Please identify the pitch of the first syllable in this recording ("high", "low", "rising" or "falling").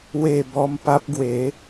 falling